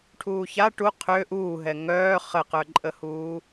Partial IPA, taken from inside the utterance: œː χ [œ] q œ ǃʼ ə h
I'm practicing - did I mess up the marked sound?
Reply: yes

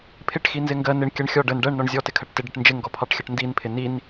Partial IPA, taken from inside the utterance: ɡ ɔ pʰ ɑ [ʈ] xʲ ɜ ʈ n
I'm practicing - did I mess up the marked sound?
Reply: no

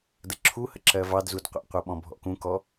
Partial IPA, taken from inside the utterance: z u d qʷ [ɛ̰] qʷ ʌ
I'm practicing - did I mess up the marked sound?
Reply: no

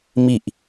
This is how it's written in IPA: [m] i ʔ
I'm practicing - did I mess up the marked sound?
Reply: no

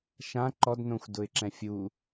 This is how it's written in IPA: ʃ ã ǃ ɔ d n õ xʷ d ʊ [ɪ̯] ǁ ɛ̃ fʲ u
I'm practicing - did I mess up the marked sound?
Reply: no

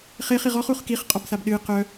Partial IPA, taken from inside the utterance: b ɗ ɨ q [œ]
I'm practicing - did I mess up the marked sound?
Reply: no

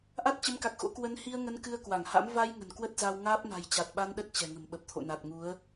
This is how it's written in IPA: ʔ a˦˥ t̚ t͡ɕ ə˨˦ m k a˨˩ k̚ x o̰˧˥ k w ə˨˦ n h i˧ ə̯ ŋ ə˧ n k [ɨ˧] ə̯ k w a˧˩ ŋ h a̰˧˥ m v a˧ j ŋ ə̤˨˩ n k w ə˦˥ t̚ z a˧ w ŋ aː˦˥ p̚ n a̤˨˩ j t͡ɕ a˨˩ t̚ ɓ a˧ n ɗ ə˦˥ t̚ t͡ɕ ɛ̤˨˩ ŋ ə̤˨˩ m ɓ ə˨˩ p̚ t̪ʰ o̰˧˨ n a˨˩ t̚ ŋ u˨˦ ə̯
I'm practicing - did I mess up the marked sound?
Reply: no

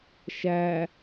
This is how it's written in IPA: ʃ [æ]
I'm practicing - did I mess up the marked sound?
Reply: no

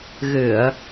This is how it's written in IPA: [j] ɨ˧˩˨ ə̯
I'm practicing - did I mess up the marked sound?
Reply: yes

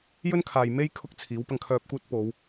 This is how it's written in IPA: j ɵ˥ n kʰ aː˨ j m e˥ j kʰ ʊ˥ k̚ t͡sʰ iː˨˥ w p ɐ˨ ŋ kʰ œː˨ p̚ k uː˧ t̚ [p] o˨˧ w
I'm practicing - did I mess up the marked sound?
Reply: no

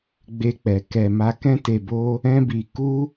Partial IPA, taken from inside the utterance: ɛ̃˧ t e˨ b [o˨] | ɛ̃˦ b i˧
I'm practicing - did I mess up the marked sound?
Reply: yes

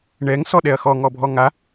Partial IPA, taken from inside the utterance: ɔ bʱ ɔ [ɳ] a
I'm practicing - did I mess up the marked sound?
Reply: yes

